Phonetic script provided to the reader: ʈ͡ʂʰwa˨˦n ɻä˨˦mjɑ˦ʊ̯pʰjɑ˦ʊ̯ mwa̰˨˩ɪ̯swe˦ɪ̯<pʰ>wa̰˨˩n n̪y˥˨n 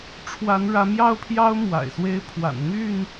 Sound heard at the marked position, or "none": pʰ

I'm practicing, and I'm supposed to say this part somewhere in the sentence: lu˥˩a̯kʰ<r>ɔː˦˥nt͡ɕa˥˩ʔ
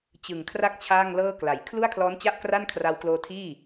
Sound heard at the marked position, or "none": l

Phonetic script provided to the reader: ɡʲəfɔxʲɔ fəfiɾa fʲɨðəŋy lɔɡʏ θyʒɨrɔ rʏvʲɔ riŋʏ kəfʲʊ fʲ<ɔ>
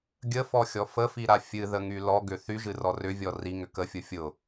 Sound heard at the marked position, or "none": ʊ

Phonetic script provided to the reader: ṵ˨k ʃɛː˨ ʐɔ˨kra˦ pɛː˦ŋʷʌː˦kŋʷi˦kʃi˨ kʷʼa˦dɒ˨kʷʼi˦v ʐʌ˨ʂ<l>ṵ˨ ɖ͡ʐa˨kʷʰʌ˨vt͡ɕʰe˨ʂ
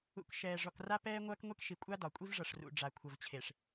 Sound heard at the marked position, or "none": r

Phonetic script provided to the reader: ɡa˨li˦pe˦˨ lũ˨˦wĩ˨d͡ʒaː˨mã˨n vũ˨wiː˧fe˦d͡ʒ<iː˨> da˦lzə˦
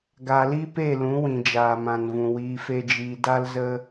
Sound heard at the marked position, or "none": iː˧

